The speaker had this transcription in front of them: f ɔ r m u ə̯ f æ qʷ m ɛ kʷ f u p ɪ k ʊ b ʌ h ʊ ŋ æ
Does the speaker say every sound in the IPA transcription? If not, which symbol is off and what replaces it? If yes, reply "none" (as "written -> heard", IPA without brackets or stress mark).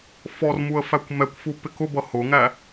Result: qʷ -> kʷ